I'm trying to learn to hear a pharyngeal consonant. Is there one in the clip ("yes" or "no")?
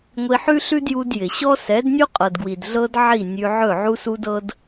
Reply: yes